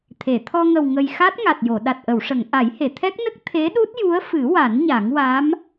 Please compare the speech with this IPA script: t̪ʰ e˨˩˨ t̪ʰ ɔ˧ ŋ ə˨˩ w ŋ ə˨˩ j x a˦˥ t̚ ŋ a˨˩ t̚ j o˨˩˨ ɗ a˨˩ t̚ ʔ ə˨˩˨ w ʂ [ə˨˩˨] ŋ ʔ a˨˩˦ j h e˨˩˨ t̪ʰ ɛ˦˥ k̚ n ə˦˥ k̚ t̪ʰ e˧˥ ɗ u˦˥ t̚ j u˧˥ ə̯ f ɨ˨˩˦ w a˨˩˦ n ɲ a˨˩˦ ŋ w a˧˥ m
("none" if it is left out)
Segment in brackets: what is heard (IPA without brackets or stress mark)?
ə˨˩˨